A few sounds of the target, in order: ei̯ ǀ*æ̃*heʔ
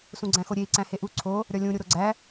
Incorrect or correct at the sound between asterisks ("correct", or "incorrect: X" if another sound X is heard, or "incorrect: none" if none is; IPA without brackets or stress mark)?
correct